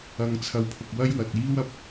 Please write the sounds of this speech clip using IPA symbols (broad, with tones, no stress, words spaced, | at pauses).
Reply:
ɐ˧ŋt͡sʰɐ˧wpʰʊ˨k̚ wɐ˥jwɐ˨t̚iː˥w ɐ˨p̚